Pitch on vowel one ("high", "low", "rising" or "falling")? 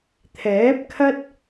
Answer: rising